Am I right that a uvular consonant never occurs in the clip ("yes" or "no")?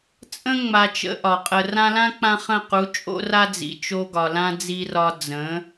no